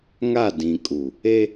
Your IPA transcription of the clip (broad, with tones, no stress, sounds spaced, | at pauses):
ŋ a˦˨ d ĩ˨ kʼ u˨ | e˦